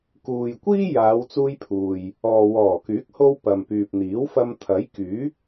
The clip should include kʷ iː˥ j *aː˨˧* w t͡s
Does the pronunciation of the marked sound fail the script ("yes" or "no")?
no